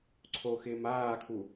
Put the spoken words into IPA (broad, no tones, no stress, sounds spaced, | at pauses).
ǀʰ o x ɪː m aː kʰ u